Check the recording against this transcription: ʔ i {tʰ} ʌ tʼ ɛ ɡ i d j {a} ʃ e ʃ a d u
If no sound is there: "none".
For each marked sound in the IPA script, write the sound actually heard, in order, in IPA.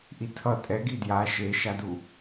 tʰ, a

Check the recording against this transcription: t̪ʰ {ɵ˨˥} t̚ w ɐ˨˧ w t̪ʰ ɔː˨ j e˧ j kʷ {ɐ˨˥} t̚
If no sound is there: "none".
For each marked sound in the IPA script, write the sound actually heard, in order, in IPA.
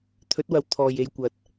ɵ˨˥, ɐ˨˥

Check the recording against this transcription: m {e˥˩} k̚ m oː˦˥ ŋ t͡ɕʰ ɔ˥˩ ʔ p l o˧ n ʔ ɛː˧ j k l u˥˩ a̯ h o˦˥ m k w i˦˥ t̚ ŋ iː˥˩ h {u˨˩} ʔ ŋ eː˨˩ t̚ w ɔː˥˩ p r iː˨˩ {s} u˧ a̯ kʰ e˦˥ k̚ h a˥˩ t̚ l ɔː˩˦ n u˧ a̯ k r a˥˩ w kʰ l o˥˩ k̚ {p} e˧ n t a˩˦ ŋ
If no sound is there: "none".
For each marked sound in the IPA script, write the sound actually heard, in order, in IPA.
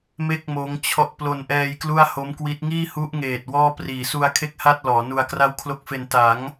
e˥˩, u˦˥, s, f

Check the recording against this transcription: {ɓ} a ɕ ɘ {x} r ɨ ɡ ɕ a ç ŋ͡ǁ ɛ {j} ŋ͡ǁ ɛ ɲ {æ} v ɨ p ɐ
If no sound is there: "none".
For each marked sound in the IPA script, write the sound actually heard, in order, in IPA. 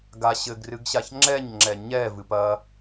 ɡ, ɡ, ɲ, ɛ

